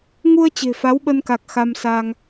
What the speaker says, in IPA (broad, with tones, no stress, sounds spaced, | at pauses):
ŋ u˧ ə̯ t͡ɕ e̤˨˩ f a˨˦ w ɓ ə˧ n k a˨˩ k̚ x a˧ m s a˧ ŋ